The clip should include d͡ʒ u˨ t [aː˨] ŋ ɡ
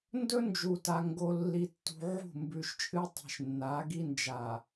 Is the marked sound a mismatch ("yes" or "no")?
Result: yes